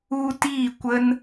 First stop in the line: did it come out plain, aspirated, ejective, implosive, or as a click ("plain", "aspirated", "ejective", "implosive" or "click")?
plain